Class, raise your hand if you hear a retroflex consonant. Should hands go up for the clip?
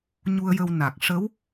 yes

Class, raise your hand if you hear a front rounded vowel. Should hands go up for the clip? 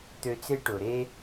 yes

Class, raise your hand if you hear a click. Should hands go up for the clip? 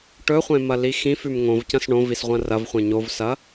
no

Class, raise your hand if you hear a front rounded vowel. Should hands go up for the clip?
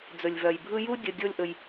yes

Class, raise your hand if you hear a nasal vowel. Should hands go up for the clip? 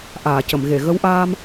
no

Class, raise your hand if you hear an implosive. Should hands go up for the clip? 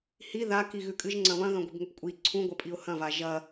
no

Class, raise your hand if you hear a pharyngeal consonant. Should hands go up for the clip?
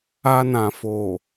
no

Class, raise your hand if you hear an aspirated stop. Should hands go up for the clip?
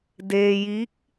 no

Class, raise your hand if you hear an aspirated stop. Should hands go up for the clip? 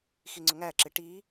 no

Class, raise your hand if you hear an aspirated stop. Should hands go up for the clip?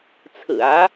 yes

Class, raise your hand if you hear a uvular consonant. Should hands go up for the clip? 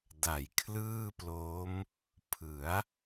no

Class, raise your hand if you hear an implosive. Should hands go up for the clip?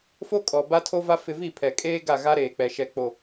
no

